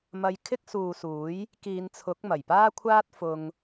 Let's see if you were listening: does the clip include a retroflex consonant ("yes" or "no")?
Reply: no